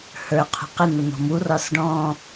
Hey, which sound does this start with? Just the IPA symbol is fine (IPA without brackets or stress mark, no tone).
h